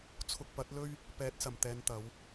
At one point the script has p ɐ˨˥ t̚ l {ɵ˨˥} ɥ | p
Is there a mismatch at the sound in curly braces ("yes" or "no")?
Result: yes